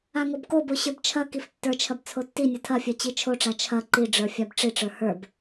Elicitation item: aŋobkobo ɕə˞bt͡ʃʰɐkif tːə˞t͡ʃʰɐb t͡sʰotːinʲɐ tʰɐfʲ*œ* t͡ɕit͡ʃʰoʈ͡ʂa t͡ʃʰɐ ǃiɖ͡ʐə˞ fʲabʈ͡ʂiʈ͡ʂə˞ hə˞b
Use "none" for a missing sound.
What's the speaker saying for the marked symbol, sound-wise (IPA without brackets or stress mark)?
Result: œ